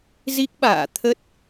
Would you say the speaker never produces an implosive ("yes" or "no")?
no